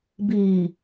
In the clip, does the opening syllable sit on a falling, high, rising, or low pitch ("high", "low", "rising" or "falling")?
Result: low